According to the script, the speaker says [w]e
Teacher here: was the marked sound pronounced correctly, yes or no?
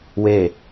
yes